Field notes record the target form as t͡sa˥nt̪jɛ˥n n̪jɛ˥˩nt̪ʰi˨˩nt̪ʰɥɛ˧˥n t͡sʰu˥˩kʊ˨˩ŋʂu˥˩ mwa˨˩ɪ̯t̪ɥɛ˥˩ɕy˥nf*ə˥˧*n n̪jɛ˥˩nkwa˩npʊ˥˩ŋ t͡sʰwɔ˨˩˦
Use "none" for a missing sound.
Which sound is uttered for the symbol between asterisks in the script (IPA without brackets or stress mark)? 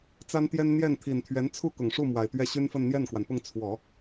ə˥˧